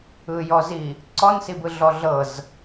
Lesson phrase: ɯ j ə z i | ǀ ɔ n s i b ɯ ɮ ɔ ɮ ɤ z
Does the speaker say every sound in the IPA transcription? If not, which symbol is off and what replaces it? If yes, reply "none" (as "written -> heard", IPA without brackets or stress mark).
ə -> ɔ